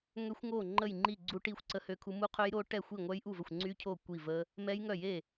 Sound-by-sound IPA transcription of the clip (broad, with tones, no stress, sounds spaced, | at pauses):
ŋ ø˦˥ xʷ ŋ o˥˩ ŋ͡ǃ ə˥˩ j ŋ͡ǃ i˥˩ ɡ͡ǀ u˦˥ ʈ i˥˩ xʷ ǀ ə˦˥ h ø˦˥ kʰ u˦˥ m u˦˥ qʰ ø˦˥ j ɾ o˦˥ ʈ ɛ˥˩ xʷ i˥˩ ŋʷ œ˦˥ j ʔ u˥˩ v ə˥˩ xʷ ŋ͡ǀ y˦˥ cʰ o˥˩ kʷ i˥˩ v ə˦˥ | m ɛ˦˥ j ŋ œ˥˩ j e˥˩